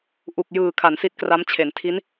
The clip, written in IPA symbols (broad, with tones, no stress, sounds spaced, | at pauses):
ʔ u˨˩ k̚ j ɯː˨˩ kʰ a˩˦ n s i˦˥ t̚ k r a˦˥ m t͡ɕʰ e˩˦ n tʰ i˦˥ n